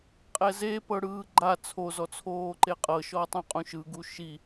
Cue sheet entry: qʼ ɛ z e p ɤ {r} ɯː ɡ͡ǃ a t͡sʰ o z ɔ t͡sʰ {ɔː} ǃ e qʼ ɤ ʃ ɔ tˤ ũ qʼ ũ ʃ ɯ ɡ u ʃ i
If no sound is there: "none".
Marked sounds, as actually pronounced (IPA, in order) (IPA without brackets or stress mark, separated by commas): ɽ, oː